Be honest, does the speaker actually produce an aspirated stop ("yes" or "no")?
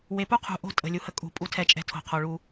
yes